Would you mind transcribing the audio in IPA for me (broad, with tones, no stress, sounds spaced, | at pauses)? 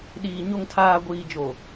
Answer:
ɗ iː˨ ɲ o˨ ŋ tʰ aː˨ ɡʷ iː˨ d͡ʒ o˨